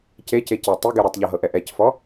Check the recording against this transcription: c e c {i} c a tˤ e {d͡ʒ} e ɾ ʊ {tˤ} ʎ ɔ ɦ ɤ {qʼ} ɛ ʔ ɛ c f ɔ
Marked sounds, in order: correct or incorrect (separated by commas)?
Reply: incorrect, incorrect, correct, incorrect